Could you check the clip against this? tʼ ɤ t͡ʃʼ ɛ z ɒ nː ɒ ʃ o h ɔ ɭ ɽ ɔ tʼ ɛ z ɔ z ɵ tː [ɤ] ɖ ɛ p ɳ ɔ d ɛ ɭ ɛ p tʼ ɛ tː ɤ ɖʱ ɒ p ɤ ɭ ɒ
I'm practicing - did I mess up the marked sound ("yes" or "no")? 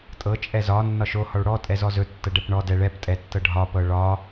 no